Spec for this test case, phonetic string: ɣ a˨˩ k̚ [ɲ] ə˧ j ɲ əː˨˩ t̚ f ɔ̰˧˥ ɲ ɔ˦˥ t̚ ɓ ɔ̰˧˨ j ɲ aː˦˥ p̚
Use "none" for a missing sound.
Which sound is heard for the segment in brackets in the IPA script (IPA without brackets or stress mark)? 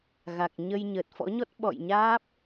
ɲ